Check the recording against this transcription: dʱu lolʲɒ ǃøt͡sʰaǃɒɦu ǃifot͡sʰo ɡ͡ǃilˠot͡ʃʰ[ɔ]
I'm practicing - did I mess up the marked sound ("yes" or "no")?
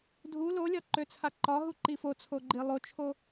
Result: yes